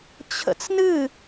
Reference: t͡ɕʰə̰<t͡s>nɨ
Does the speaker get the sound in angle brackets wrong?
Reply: no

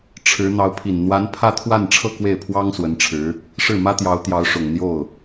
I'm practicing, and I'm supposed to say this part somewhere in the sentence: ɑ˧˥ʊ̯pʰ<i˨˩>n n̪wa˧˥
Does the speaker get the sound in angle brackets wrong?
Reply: no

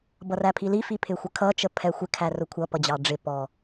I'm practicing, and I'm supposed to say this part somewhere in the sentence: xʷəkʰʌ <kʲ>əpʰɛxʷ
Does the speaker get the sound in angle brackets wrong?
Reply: yes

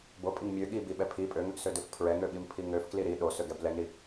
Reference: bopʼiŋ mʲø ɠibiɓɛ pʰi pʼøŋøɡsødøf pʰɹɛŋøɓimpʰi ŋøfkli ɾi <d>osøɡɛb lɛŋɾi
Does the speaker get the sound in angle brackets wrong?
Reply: yes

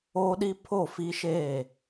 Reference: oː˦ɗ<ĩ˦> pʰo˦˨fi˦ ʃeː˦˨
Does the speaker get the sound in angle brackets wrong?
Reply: yes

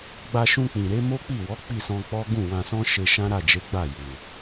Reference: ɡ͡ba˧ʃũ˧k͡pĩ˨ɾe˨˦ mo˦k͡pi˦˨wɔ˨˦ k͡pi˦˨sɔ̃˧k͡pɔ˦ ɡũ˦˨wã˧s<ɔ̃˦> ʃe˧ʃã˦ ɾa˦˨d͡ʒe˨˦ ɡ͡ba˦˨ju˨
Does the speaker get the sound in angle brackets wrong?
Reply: no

